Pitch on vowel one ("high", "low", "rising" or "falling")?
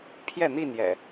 falling